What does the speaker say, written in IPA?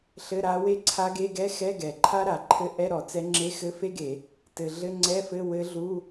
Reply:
ɬ ɘ˧˥˧ ɾ a˧˥ w e˥ ǀʰ a˧˥ ɡ e˧˥˧ ɡ ɛ˧˥˧ x ɛ˧˥˧ ɡ ɛ˩ ǃʰ a˥ ɾ a˩ ǃʰ ɘ˧˥ ʔ ɛ˧˥˧ ɾ ɔ˩ t͡s ɛ˧˥ ŋ͡ǁ e˧˥˧ x ɘ˧˥˧ f e˥ ɡ e˧˩˧ | t ɘ˩ ɮ ɘ˧˥˧ ŋ͡ǀ ɛ˧˥˧ f ɘ˧˥˧ w ɘ˧˥ ɮ u˧˥˧

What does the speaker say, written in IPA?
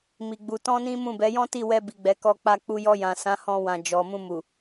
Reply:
m i˨ ɡ͡b u˧ t ɔ̃˦ n ĩ˦ m ũ˦˨ b ɛ˨˦ j ɔ̃˦ t i˦˨ w ɛ˧ b i˨ ɡ͡b ɛ˨˦ k ɔ˧ k͡p a˧ k͡p u˧ j ɔ˧ j ã˨ s ã˨˦ h ɔ̃˧ w ã˨ d͡ʒ ɔ˨ m ũ˧ m u˨

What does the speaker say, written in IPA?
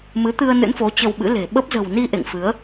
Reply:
m ɨ˨˦ t̪ ɨ˧ ə̯ n ɨ̰˧˥ n f o˨˦ t͡ɕ ə˧ w ɓ ɨ̰˧˥ l e̤˨˩ ɓ ə˦˥ p̚ z ə̤˨˩ w n i˧ ʔ ḛ˧˨ ŋ f ɨ˨˦ ə̯

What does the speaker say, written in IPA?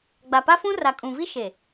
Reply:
ɡ͡b a˨ p a˦ f ũ˦ r a˨ kʼ ũ˨ v i˦ ʃ e˨

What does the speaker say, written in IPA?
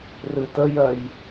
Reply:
r ɨ t ə j ɜ j

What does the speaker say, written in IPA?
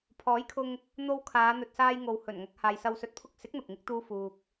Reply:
pʰ ɔː˨˥ j kʰ ʊ˧ ŋ | n̪ o˧ w kʰ aː˨˧ n̪ ɵ˨ t̚ s aː˧ j ŋ o˨ w h ɵ˨˩ n ŋ ɐ˧ k̚ h aː˨ j s ɐ˧ w s ɵ˧ t̚ pʰ ʊ˥ k̚ s ɪ˨˥ k̚ n̪ ʊ˨ k̚ ŋ ɪ˥ k̚ t̪ uː˥ f uː˧ k̚

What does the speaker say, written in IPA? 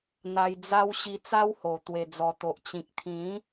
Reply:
n̪ a˧ j d͡z a˦ w ɕ i˧ t͡s a˦ w h o˨˩ t̪ w e˨˩ d͡z ɔ˨˩ t̪ o˨ ʔ t͡ɕ ĩ˨ k̚ t̪ʰ ĩ˨˦

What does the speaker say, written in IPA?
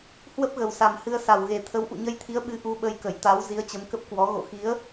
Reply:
h w ə˦˥ p̚ ɣ ə˨˩ w s a˨˩ m h ɨ˧ ə̯ s a˨˩ w ɣ e˨˩ t̪ʰ ə˨˦ w ʔ ṵ˧˨ ɲ ə˧ j t̪ʰ i˨˦ ə̯ ɓ ɨ˧ ʔ u˧ ɓ ə˧ j k ə˧˩ j t̪ a˨˦ w z i˨˦ ə̯ t͡ɕ ə˨˦ m k ə˦˥ p̚ k w ɔ˨˦ ɣ o̰˧˨ x i˨˦ ə̯

